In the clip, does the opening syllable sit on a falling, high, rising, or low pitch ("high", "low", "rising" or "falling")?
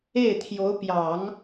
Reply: falling